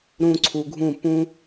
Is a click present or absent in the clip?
present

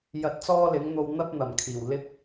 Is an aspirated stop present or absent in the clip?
present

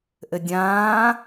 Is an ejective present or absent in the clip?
absent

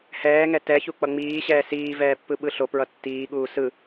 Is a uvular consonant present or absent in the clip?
absent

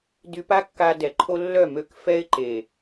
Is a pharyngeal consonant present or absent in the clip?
absent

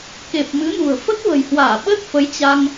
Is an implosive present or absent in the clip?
present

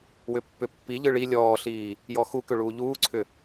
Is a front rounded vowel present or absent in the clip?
present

